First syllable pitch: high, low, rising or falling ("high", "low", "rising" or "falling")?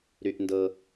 low